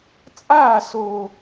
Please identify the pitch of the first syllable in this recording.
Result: falling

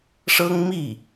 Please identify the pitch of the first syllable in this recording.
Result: high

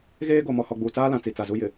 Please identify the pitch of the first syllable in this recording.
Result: high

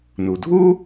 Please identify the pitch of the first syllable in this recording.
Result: low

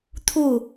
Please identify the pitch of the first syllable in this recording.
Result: falling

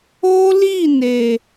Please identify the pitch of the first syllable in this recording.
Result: high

